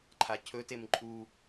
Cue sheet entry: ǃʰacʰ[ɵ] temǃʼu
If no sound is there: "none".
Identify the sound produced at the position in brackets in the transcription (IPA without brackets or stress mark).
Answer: ɵ